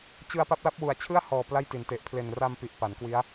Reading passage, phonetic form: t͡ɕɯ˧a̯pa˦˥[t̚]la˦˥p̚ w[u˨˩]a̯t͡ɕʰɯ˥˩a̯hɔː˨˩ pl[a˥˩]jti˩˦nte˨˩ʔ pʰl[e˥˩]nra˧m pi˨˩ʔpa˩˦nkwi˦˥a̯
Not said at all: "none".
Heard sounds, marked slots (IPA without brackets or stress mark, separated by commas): p̚, u˨˩, a˥˩, e˨˩